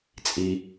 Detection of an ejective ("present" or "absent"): present